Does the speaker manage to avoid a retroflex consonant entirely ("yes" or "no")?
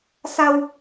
yes